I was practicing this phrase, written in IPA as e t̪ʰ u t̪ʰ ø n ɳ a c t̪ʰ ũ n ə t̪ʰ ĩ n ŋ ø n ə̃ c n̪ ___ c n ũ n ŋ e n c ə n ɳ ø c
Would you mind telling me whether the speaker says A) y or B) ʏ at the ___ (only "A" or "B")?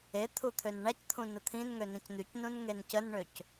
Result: A